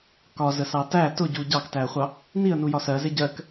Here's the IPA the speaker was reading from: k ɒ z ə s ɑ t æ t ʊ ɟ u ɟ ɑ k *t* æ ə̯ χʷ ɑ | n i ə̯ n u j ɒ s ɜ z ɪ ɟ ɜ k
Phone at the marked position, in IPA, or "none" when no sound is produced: t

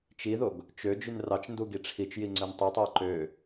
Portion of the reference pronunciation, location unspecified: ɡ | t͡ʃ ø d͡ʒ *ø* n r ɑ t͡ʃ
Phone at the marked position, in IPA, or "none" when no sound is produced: y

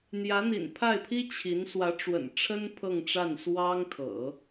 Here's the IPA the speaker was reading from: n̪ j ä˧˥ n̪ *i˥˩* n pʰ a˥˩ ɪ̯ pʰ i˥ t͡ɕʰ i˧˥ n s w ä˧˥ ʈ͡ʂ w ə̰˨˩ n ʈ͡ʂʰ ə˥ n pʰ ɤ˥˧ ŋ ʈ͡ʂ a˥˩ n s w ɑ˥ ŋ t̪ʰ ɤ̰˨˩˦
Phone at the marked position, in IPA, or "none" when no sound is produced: ḭ˨˩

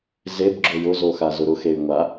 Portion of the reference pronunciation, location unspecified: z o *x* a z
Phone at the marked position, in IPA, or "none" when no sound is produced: x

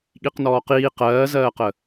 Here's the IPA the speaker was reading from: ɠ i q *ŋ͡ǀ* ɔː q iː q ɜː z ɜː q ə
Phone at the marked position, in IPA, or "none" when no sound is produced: n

